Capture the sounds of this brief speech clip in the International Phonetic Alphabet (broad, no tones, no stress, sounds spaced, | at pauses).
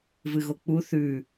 v ɨ ɣ o k͡p u θ ʉ